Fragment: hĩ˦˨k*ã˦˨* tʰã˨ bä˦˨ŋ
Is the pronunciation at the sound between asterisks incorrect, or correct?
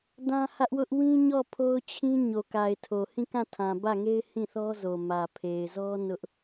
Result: correct